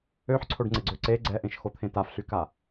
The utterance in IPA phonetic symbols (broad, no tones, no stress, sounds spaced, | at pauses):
ø ħ ǀʰ o ɖ ŋ͡ǀ e ɡ͡ǀ ø ǀ e ɡ͡ǀ ɛ ʔ ẽ ʃ x o t̪ʰ ẽ t a f ɬ y k a